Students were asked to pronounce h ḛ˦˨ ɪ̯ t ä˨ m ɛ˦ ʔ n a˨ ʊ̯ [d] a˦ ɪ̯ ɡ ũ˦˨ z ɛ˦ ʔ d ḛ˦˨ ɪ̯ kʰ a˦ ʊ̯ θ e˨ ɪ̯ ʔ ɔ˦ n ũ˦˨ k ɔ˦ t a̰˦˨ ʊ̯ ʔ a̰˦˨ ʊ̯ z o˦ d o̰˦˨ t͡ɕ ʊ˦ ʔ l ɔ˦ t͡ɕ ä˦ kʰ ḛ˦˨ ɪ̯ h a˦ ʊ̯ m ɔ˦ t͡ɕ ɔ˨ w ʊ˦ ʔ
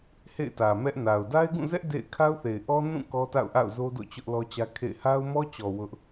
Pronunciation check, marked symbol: correct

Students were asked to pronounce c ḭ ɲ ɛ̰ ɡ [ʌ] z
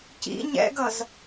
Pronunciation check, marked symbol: correct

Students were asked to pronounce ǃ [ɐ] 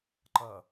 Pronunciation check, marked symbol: correct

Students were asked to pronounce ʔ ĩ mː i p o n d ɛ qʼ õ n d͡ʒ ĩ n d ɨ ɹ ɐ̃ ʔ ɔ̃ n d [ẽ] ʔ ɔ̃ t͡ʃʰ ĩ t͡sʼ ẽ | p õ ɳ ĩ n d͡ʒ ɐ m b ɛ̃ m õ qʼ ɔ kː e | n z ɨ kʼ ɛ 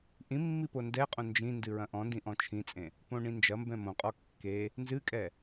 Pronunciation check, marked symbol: incorrect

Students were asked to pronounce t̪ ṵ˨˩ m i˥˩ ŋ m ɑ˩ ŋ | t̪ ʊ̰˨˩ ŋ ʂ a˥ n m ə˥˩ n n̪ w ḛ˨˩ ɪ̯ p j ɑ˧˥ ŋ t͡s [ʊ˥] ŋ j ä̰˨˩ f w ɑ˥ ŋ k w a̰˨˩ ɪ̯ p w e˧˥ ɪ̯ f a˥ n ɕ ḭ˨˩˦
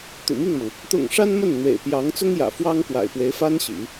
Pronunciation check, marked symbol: correct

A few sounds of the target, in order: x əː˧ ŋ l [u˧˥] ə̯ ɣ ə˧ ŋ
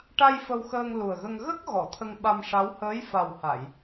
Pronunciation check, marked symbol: incorrect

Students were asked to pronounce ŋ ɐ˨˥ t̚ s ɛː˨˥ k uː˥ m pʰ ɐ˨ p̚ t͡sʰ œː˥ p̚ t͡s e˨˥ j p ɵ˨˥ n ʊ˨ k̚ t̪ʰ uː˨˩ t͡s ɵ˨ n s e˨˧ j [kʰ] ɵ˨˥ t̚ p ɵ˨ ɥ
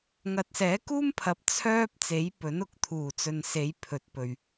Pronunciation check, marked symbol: incorrect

